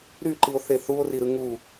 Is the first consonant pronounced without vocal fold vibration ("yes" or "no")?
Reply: no